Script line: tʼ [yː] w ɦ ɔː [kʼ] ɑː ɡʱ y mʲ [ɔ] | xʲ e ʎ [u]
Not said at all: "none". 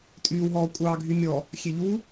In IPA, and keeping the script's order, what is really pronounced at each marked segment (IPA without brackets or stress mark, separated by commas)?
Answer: yː, kʷʼ, ɔ, u